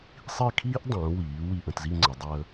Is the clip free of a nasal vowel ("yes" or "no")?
no